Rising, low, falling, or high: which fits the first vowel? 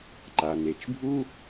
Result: low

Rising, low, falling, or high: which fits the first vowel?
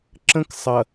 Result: high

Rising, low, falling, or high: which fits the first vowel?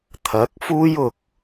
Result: rising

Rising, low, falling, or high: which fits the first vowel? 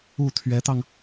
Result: falling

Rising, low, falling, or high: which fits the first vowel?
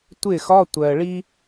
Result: falling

